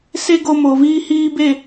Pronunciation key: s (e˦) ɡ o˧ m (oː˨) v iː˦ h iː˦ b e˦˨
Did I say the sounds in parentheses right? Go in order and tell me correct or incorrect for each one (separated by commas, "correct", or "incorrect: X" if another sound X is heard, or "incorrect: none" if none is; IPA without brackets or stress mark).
correct, correct